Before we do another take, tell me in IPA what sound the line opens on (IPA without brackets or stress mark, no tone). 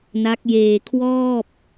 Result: n